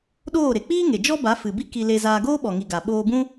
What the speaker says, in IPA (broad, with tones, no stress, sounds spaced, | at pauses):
ɗ oː˦˨ ɾ e˨ k͡p iː˦ ŋ e˨ d͡ʒ ɔ˦ b a˨˦ f ɨ˨ b i˦ k i˧ l e˧ z aː˧ ɡ oː˦ ɓ ɔ˨ ŋ i˨ ɡ a˨ ɓ oː˧ b ũ˦